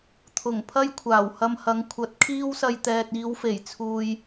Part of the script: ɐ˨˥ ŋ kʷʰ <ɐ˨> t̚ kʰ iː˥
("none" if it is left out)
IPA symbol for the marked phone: ɐ˨˥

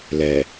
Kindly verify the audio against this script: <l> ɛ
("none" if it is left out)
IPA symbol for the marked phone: l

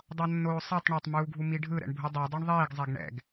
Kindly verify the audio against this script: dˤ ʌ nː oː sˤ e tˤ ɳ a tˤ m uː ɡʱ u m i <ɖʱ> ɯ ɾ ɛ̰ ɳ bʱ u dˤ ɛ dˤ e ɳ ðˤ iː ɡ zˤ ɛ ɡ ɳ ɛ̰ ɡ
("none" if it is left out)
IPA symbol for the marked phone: ɖʱ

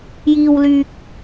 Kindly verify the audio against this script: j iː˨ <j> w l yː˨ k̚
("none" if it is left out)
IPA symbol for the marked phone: none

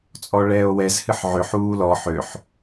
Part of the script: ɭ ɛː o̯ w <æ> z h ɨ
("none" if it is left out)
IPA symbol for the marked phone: ɛ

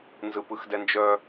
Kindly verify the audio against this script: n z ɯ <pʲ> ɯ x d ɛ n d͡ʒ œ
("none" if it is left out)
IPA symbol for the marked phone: p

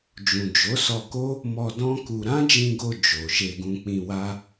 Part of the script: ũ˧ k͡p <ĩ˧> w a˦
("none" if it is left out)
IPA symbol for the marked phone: ĩ˧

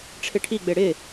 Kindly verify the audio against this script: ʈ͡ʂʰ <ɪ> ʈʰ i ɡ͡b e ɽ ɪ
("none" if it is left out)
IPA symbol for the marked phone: ɪ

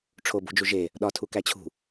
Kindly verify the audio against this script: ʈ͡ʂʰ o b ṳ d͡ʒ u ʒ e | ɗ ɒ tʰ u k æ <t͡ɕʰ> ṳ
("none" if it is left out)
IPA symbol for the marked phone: t͡ɕʰ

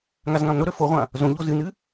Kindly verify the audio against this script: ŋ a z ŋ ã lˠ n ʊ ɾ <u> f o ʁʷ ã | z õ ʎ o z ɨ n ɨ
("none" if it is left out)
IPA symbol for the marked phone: ø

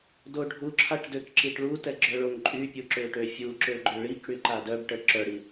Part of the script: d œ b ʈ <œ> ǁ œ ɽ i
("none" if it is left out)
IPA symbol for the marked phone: ə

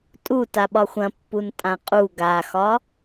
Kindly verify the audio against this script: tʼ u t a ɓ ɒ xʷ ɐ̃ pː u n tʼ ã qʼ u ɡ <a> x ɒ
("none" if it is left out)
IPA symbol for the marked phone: a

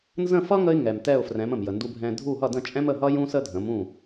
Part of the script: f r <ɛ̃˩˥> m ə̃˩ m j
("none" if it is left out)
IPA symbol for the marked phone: ɛ̃˩˥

